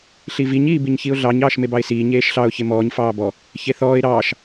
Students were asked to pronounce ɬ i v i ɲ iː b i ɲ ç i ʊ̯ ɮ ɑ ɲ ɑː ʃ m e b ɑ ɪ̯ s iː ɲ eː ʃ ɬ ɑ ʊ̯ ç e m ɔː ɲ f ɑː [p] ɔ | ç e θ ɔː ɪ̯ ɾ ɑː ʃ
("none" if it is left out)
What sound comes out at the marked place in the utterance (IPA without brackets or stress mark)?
b